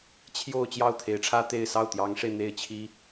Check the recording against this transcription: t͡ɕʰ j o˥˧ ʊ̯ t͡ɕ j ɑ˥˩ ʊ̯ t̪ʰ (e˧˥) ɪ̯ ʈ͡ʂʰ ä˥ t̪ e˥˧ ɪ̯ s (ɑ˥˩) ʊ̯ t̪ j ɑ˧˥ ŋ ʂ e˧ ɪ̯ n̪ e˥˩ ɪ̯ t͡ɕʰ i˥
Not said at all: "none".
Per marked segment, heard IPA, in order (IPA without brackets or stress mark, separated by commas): e˧˥, ɑ˥˩